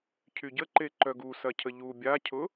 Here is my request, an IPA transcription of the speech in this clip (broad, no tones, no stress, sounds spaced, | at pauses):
cʰ y ɟ ə ǃ e ǃ œ ɡ u s ɐ cʰ ə ʎ u bʲ a cʰ ʊ